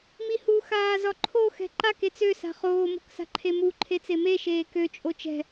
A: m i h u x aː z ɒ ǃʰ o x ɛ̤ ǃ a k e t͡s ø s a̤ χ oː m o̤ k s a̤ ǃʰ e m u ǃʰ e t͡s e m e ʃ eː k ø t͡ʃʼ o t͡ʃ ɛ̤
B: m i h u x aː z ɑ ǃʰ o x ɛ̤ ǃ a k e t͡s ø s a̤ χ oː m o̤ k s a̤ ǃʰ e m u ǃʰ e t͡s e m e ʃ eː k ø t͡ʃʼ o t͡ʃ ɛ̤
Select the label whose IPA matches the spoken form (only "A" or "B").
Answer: A